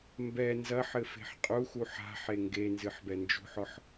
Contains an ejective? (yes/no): yes